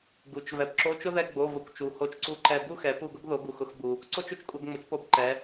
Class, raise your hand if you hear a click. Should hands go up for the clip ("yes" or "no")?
yes